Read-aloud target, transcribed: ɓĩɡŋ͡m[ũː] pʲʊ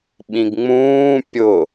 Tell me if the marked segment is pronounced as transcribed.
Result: yes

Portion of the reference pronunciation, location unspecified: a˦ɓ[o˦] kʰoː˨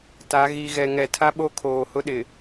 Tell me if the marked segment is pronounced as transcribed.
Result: yes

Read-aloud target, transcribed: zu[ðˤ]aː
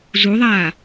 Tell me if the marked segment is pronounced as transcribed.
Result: yes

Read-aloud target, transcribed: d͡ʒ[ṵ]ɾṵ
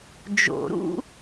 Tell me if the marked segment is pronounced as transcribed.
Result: no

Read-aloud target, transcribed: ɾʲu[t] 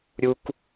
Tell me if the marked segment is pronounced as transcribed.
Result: no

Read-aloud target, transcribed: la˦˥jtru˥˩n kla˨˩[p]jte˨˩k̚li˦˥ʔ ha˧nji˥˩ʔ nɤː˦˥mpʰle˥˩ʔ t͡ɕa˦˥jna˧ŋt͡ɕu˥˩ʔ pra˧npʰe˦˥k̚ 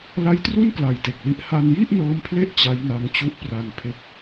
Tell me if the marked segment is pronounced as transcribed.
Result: no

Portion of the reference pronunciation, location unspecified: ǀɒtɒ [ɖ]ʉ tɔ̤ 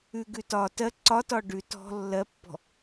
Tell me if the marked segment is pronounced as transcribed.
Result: yes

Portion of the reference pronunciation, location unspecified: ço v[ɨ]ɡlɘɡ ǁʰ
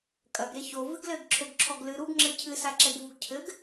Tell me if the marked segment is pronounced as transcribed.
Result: yes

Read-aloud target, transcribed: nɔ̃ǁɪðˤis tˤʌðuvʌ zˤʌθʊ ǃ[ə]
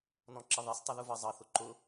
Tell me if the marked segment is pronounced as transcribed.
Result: no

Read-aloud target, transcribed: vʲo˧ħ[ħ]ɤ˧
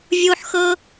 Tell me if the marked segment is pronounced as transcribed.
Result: no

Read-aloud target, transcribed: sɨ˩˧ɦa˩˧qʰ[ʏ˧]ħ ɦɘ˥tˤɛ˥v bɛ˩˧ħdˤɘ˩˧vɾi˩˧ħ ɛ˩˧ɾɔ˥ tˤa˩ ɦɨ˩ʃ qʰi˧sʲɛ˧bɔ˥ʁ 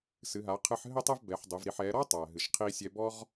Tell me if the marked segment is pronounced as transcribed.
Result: no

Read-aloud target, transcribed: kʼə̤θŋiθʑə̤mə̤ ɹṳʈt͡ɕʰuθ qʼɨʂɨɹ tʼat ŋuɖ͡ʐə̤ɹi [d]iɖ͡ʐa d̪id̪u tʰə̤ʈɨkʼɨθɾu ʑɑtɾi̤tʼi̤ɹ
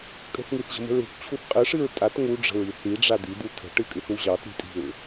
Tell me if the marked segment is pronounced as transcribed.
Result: no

